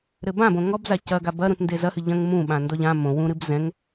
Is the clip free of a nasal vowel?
no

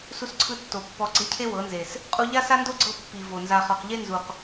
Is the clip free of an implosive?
yes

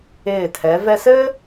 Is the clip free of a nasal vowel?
yes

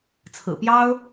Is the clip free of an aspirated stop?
no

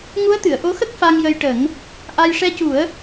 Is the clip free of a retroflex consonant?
no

